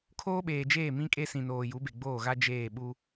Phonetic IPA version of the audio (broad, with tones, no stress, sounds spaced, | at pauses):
kʰ oː˦ ɓ eː˨ d͡ʒ eː˦˨ m ĩ˦ kʼ e˦ s ĩ˨ n oː˨ j u˨˦ b e˨ ɡ͡b oː˦˨ ɣ a˦ d͡ʒ eː˦˨ ɓ u˦